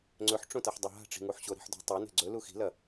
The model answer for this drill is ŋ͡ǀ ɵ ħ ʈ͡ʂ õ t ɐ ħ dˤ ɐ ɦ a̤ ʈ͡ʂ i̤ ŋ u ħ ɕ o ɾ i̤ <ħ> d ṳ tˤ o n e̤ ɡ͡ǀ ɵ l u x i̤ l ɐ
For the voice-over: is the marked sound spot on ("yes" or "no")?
yes